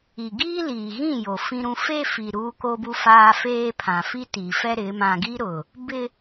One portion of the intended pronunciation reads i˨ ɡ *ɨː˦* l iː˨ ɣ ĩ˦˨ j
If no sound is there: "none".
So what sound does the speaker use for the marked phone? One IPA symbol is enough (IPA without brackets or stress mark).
iː˦